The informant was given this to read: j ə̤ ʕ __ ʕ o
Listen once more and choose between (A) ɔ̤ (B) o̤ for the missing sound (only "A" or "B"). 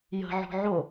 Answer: A